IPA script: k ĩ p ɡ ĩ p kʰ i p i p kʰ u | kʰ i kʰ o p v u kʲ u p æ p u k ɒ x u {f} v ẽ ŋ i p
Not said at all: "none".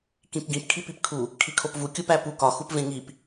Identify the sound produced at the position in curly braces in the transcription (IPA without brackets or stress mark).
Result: p